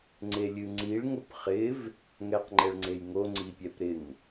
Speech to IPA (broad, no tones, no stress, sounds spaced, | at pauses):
ŋ͡ǀ e lʲ ɨ ŋ͡ǀ i ɭ ŋ ʊ p χ ɪ v | ŋ ɛ q ŋ͡ǃ ɛ ɭ ŋ͡ǀ e j ŋ o ŋ͡ǀ i pʲ ɛ p ɾ ɪ ŋ